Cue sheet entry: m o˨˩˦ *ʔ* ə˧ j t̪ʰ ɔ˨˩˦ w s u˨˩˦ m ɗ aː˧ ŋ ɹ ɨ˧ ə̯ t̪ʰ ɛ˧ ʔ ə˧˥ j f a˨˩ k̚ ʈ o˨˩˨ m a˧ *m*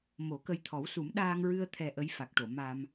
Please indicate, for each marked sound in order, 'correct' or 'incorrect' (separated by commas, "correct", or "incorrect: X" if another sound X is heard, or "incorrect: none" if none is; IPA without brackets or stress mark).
incorrect: k, correct